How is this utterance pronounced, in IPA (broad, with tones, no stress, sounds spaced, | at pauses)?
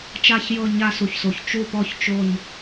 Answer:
t͡ʃ a˦˨ ç j ɤ˦˨ ɲ a˦˨ s u˩ ç s o˩ ç t͡ʃ u˦˨ p ɔ˦˨ ç t͡ʃ o˦˨ ɲ